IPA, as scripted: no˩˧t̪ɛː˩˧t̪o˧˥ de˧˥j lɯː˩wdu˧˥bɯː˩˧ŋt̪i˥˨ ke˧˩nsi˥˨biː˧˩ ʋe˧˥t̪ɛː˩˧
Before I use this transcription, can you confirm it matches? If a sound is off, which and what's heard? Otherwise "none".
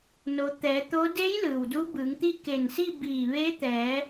none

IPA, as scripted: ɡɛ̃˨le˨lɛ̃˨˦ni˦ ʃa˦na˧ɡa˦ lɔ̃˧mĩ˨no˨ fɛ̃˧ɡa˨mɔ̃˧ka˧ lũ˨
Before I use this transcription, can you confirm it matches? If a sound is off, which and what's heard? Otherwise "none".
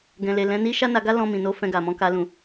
o˨ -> o˨˦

